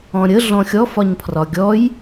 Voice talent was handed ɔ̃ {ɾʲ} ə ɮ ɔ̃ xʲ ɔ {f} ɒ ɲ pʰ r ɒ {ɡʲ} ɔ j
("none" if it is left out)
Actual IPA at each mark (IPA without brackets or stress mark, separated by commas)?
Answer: ɾʲ, f, ɡʲ